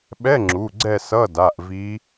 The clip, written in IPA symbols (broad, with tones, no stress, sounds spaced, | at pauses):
ɓ ɛ˧˥˧ ŋ͡ǁ u˩˧˩ ɡ͡ǀ ɛ˦˨ s ʌ˧˥˧ d a˩˧˩ ʔ v i˧˥